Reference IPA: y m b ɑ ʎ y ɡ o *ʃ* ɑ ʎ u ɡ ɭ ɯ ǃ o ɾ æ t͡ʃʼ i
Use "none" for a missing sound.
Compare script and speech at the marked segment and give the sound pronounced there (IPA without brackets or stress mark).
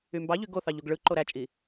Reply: θ